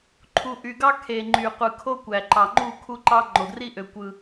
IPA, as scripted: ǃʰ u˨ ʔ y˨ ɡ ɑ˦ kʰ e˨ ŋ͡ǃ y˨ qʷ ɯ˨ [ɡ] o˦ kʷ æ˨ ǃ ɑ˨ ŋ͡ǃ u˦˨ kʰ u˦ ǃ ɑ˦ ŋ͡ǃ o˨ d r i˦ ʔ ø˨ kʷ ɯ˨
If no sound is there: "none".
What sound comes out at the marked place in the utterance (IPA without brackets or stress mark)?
kʰ